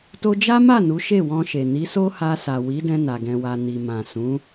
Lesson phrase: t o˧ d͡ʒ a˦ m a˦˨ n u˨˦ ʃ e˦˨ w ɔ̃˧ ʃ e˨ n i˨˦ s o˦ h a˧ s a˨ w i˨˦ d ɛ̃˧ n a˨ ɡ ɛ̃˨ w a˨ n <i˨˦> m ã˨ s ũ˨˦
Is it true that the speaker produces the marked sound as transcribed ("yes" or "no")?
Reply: no